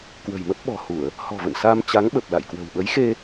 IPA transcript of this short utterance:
k w ə̤˨˩ j m ə˦˥ p̚ ɓ ɔ̤˨˩ h u˧˩˨ ə̯ | h ɔ̤˨˩ v ə̰˧˨ n s a˧ m t͡ɕ a˨˦ ŋ ɓ ə˨˩ p̚ l a̰˧˨ j k w ə̤˨˩ w ɓ ə˨˦ j x e˧

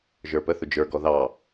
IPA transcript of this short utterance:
ʒ ə˞ p ə θ ʊ d͡ʒ ə˞ ɡ ɔ ð ɑ

